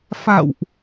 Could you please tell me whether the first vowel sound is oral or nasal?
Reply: oral